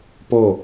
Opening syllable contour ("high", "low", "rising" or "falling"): falling